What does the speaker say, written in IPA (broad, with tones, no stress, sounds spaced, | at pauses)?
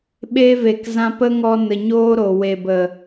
ɓ e˧ v e˨ k z ã˧ p ə˦ ŋ ɔ˧ n ə˨ ɲ oː˦ ɾ o˨ w e˨ b ə˨